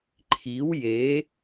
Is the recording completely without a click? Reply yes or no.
no